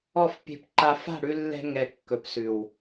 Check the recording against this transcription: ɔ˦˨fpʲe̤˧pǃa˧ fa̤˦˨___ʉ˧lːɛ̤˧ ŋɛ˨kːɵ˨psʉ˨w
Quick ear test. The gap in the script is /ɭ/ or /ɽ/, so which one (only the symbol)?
ɽ